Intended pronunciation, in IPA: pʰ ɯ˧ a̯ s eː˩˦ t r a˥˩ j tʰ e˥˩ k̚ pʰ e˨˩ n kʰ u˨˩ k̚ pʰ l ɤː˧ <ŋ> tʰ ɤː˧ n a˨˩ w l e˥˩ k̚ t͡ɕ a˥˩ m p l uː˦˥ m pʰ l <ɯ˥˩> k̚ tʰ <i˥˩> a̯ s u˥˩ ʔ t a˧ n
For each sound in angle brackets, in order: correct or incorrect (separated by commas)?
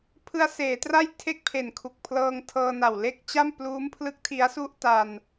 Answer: correct, incorrect, incorrect